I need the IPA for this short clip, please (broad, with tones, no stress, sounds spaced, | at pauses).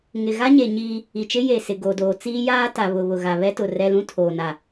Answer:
ŋ ɪ˨ ɣ a˦ ɲ e˨ ɲ iː˦ | i˨ t͡ʃ ɪ˦ j e˨ s ɪ˨ ɡ o˨ d oː˨ t͡s iː˦ j aː˦ t a˨ β ʊ˨ β ʊ˨ ɣ a˨ β ɛ˦ t ʊ˨ r ɛ˦ l ũ˦ tʰ oː˨ n a˨